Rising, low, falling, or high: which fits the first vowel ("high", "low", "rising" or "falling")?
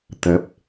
rising